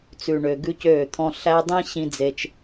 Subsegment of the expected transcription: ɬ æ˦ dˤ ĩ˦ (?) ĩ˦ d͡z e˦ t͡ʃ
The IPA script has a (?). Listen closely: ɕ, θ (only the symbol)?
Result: ɕ